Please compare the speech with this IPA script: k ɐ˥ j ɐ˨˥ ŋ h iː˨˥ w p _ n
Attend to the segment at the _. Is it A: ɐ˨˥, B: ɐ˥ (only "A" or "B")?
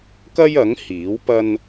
B